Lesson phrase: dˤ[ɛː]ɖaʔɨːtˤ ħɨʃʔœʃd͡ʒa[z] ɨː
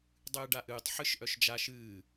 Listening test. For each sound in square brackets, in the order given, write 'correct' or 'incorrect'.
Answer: incorrect, incorrect

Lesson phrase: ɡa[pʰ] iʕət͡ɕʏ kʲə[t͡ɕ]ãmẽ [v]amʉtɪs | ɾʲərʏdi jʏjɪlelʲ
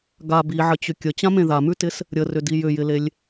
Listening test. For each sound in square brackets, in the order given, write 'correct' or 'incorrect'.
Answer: incorrect, correct, incorrect

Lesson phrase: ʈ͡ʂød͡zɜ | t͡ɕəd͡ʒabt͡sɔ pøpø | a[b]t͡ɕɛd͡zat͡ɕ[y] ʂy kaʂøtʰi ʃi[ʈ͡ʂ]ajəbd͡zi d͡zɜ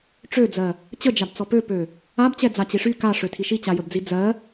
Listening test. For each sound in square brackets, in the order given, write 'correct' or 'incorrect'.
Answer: correct, incorrect, incorrect

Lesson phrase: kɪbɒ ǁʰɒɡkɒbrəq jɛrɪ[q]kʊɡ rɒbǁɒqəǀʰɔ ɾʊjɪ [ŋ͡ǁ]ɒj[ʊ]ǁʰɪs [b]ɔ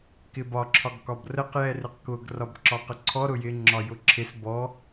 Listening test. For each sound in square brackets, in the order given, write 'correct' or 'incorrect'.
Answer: correct, correct, correct, correct

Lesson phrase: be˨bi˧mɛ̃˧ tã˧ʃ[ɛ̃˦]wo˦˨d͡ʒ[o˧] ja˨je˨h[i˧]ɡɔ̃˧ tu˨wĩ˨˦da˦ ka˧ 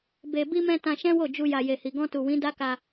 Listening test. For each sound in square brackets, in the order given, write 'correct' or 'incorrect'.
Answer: correct, incorrect, incorrect

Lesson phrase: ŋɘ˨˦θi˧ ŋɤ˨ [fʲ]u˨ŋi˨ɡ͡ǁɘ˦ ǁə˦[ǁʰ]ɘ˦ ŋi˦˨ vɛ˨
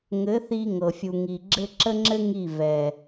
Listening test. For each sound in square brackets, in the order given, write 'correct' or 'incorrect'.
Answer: correct, incorrect

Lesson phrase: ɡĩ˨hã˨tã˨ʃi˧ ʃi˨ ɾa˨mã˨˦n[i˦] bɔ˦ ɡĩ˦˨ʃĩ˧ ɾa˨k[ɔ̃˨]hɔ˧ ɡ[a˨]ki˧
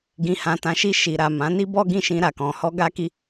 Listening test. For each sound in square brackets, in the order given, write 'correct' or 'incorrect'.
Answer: correct, correct, incorrect

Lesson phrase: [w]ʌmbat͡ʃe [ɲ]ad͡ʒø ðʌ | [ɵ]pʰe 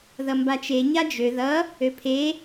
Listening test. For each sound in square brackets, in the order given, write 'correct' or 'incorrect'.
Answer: incorrect, correct, incorrect

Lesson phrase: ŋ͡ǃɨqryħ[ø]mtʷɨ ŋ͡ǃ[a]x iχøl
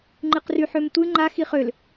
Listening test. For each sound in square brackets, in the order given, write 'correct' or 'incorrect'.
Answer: correct, correct

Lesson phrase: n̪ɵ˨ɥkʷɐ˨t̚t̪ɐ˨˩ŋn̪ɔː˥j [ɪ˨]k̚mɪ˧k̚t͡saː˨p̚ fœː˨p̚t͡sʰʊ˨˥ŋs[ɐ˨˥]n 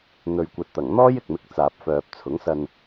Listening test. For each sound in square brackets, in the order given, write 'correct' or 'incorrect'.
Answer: correct, incorrect

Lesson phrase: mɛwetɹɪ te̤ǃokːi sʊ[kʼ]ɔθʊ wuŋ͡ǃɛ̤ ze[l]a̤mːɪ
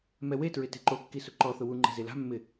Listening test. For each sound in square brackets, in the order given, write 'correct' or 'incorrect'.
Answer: incorrect, correct

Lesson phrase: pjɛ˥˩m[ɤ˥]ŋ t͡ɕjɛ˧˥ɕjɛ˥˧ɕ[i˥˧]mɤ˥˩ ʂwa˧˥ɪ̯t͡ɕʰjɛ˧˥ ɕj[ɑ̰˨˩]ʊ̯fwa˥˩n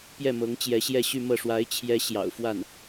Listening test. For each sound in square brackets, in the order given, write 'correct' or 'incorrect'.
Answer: incorrect, incorrect, correct

